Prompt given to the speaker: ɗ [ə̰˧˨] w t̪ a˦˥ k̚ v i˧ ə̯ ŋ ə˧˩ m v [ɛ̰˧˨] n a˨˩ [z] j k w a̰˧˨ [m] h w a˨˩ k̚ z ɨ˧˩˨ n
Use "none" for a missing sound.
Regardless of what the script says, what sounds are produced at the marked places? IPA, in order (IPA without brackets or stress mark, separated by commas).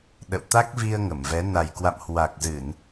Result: ə̰˧˨, ɛ˨˦, none, m